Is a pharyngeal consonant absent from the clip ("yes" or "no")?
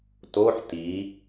no